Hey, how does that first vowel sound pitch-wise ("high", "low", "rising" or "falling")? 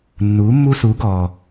rising